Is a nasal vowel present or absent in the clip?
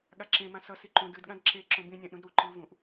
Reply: present